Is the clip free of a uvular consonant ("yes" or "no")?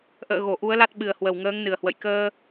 yes